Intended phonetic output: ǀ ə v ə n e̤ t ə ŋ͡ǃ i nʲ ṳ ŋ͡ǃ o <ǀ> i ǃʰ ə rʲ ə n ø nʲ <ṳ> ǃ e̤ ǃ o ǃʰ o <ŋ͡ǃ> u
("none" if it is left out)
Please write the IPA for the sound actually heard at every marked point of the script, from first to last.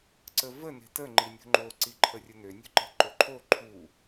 ǀ, ṳ, ǃʰ

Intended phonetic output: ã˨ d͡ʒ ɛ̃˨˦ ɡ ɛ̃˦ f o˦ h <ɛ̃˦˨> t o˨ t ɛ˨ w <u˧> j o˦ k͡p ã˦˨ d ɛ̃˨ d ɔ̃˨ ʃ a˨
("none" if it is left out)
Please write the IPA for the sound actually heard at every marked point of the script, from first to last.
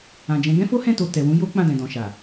ɛ̃˦˨, ũ˧

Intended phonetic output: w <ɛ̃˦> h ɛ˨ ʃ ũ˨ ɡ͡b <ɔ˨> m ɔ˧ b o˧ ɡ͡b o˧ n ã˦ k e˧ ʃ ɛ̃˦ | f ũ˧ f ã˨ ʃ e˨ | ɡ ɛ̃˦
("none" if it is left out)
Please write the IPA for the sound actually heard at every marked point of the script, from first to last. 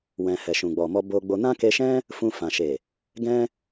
ɛ̃˨, ɔ˨

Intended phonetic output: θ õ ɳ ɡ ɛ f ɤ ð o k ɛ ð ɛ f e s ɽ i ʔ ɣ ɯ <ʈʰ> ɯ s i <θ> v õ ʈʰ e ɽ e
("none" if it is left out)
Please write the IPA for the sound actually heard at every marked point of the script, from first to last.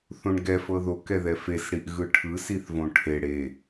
ʈʰ, θ

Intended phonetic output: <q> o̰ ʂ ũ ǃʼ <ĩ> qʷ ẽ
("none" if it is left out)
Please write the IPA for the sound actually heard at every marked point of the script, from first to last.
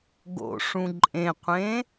ɡ, ẽ

